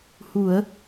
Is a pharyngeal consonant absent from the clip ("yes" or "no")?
yes